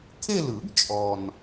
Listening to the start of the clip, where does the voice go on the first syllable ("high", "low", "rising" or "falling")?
falling